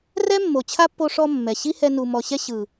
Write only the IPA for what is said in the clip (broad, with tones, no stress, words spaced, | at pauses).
rɛ˦mːo˨ t͡ɕʰa˦pːo˧ ʂɔ˧ mːɛ˨ ɕi˦hɛ˧nu˨ mɔ˨ ɕɛ˧ ɕɯ˨